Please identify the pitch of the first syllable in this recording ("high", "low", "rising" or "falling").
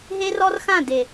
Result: high